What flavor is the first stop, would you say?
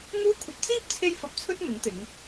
aspirated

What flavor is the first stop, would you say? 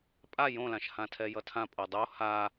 ejective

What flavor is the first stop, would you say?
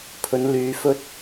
aspirated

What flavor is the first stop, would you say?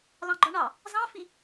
click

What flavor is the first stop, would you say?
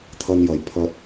aspirated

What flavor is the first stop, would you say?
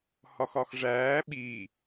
implosive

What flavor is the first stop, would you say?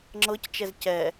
click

